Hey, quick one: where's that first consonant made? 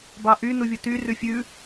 lips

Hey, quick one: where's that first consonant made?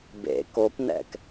lips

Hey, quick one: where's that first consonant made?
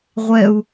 uvula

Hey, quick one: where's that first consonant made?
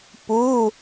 lips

